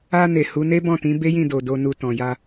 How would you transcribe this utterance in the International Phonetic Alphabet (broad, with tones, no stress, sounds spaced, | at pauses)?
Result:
a˧ n e˨ h u˨˦ n e˦ b ɔ̃˦˨ t ĩ˨˦ b e˦ j ĩ˦˨ d o˨ d o˧ n u˧ t ɔ̃˨ j a˧